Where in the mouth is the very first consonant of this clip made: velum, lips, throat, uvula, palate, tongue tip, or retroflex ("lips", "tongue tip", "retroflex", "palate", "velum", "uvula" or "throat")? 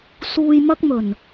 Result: tongue tip